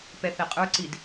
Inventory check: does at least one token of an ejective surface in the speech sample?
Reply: yes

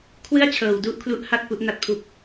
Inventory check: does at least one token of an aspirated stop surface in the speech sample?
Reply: yes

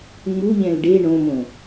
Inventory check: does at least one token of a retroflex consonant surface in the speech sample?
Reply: yes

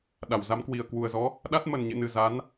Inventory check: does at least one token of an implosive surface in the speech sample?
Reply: yes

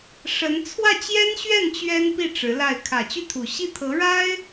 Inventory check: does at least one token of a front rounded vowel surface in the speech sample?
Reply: yes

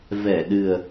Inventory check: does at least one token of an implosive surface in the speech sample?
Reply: yes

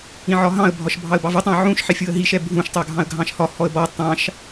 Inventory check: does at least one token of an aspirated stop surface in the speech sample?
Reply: no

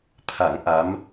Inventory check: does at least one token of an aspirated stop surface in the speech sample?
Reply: yes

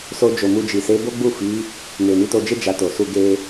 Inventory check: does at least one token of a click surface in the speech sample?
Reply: no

